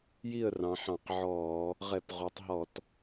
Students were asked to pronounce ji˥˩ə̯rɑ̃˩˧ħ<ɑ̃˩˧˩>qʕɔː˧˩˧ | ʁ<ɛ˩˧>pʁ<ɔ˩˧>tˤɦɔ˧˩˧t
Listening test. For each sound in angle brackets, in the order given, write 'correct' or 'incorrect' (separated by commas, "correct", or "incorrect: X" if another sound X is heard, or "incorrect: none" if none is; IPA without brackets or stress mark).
incorrect: ɑ̃˧˩˧, incorrect: ɛ˧˩˧, incorrect: o˩˧